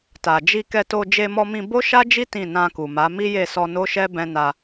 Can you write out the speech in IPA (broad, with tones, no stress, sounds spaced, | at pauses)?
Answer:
t a˨ d͡ʒ i˧ k ɛ˧ t o˧ d͡ʒ e˧ m ɔ˧ m ĩ˧ b o˦ ʃ a˦ d͡ʒ i˦ t ĩ˦˨ n ã˧ k u˨ m a˨˦ m i˦ j e˦˨ s ɔ˧ n o˦ ʃ ɛ˦ b ɛ̃˦ n a˧